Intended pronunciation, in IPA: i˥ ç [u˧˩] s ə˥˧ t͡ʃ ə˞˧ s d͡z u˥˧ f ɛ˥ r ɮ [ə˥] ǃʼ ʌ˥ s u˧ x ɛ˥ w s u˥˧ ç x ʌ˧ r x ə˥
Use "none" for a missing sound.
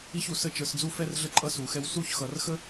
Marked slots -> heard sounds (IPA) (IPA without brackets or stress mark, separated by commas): u˧˩, ə˥